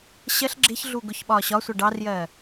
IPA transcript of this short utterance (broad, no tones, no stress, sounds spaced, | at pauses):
ɕ ɜ ɬ ɡ͡ǁ ɪ ç ɮ u ɡ ʊ ç ɓ ɒː ɕ ɒ sʷ ɜ ɖ ɑ r j ɜː